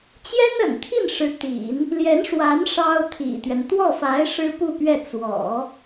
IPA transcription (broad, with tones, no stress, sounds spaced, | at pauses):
t͡ɕ j ɛ˥ n ə̰˨˩ n t̪ʰ i˥˩ n ʂ ɻ̩˧˥ t̪ ḭ˨˩˦ n | l j ɛ˧˥ n ʂ w a˧˥ n ʂ ɑ˥ ʊ̯ t̪ʰ ḭ˨˩ t̪ ɥ ɛ˦ n t̪ w ɔ˥˩ f a˧˥ ɪ̯ ʂ ɻ̩˥ p u˥˧ p ɥ ɛ˥˩ t͡s w ɔ̰˨˩˦